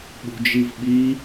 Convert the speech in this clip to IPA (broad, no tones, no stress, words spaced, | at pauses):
ɓṳd͡ʒivɓi